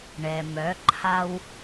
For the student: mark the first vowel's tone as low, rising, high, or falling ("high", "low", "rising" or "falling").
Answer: low